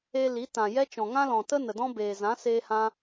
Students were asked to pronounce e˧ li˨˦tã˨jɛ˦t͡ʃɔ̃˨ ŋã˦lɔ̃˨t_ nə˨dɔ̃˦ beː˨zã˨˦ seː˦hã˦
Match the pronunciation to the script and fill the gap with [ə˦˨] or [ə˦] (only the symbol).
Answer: ə˦